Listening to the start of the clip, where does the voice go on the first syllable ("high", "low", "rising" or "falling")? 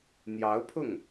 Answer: rising